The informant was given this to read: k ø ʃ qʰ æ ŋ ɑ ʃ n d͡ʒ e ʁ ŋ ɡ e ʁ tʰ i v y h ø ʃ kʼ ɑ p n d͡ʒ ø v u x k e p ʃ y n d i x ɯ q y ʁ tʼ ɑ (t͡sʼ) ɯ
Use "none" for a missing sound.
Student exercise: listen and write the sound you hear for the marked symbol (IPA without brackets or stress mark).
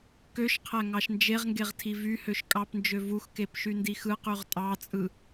t͡sʼ